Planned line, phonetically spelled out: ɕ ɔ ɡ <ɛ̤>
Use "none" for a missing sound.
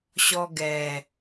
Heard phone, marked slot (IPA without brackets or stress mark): ɛ